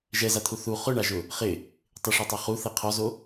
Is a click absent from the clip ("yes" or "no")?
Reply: yes